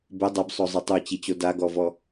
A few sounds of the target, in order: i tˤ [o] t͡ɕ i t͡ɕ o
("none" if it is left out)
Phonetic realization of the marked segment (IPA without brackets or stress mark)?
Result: o